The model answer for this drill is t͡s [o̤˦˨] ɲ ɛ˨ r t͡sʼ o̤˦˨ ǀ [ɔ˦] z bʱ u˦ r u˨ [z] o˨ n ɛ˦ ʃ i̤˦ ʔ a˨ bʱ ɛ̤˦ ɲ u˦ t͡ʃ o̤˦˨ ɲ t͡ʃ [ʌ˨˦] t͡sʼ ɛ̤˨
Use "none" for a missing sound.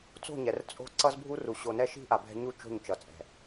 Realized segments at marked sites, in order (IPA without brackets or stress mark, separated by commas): o̤˦˨, ʌ˦, ɕ, ʌ˨˦